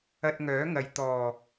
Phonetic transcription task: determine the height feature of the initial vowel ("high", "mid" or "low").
low